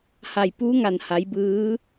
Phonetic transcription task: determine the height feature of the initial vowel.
low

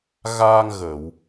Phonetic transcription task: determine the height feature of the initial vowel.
low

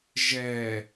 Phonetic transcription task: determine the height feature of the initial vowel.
mid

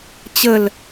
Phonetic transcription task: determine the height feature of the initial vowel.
mid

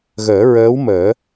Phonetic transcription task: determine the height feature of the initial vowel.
mid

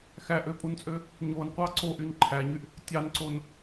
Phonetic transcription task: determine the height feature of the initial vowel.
low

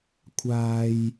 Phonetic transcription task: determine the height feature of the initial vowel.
low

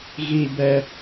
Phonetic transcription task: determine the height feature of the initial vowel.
high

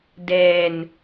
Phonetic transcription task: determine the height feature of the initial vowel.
mid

